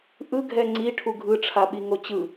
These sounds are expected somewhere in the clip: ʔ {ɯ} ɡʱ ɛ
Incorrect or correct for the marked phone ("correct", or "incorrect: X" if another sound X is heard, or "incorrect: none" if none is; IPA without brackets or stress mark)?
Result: correct